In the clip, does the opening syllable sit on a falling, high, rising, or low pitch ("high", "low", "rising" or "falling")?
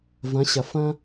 rising